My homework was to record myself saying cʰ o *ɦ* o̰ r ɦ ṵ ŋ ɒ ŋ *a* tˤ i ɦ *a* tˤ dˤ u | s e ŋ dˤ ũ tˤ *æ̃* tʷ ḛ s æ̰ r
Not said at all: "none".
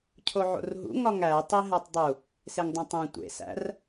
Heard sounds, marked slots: ʕ, æ, æ, æ̃

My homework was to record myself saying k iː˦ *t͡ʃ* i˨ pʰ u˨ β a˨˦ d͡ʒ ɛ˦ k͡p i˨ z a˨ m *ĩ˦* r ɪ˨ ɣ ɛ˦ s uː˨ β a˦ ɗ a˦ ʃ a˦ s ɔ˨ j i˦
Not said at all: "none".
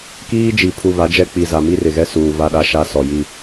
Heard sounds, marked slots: d͡ʒ, i˦

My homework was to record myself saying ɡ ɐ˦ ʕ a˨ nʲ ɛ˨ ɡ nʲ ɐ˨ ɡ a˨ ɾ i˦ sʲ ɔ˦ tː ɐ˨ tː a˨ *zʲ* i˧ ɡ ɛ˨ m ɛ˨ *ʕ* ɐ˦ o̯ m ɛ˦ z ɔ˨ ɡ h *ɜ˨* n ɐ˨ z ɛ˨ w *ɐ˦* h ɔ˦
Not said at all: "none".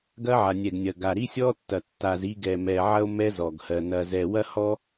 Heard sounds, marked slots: z, ʕ, ɜ˨, ɐ˦

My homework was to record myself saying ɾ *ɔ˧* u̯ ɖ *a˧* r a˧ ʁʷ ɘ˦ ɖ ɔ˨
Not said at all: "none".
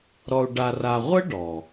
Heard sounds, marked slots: ɔ˧, a˧

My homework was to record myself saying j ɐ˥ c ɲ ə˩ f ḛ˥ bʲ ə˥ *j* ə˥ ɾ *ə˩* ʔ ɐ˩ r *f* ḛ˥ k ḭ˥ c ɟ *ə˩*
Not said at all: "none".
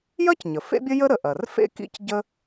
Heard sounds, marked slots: j, ə˩, f, ə˥

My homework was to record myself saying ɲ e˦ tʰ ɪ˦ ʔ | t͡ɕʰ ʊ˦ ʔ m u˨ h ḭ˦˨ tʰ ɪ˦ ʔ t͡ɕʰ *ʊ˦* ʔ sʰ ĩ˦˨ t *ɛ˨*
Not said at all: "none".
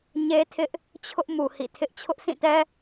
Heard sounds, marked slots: ʊ˦, ɛ˦

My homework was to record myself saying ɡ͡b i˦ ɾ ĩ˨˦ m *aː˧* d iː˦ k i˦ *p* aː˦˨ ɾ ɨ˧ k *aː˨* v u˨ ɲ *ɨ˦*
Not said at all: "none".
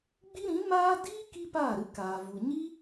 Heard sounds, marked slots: aː˦, p, aː˨, i˦

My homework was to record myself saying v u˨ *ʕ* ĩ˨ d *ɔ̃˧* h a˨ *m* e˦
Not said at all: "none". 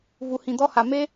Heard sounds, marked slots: h, ɔ˧, m

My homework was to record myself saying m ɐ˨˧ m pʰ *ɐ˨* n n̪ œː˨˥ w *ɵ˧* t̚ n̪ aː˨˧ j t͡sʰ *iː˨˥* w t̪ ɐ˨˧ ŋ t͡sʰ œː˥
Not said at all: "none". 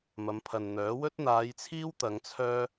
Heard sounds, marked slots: ɐ˨, ɵ˥, iː˥

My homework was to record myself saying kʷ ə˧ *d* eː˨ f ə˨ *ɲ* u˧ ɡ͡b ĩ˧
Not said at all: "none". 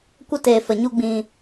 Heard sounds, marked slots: t, ɲ

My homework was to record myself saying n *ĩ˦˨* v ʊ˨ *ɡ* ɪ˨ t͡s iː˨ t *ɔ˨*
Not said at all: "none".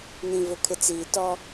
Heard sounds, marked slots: ĩ˨, kʰ, ɔ˦

